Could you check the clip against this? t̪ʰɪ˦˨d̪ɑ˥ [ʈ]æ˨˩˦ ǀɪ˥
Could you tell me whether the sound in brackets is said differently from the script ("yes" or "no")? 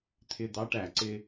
no